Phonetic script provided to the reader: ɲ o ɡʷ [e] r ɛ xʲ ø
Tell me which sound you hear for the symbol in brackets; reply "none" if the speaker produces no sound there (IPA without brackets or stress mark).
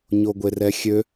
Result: e